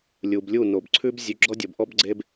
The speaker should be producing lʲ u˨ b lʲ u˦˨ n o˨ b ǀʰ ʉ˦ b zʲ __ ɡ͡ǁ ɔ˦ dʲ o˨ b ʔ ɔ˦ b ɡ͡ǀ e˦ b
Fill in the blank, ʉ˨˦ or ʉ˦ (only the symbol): ʉ˨˦